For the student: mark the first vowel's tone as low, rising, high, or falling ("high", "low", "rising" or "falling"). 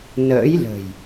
rising